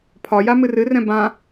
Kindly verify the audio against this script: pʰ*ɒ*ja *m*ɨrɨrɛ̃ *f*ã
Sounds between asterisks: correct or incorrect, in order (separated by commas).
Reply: correct, correct, incorrect